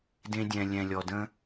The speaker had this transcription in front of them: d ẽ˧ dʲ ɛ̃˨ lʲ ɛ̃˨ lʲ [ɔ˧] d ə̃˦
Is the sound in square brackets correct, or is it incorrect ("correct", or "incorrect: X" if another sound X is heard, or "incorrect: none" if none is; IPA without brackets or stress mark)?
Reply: incorrect: ɔ˨